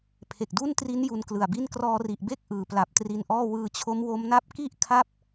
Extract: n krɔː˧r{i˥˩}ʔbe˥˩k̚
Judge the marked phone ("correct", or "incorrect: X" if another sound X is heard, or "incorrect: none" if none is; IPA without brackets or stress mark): incorrect: i˨˩